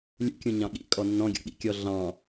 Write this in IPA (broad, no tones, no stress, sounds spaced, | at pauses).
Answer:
lʲ ṵ kʲ ũ ɲ ɑ̃ ɠ ḭ kʼ ɔ nː ɔ̃ ɡʲ ɔ̰ ɠ ḭ kʲ ɔ ɮ ɑ̃